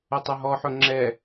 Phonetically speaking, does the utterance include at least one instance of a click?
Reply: yes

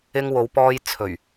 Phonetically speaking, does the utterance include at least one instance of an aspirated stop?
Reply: yes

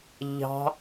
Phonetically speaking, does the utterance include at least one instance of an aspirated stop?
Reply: no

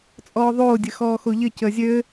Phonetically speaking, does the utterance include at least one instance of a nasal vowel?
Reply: no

